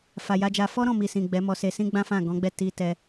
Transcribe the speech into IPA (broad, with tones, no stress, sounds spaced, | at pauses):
f a˨ j a˧ d͡ʒ a˧ f ɔ˦ ɾ ɔ̃˦˨ m i˨ s ĩ˨ ɡ͡b ɛ˨˦ m ɔ˧ s e˧ s ĩ˦ ɡ͡b ã˦ f ã˦˨ ɡ ɔ̃˨˦ ɡ͡b ɛ˦˨ t i˧ t ɛ˧